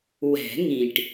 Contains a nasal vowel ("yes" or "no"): yes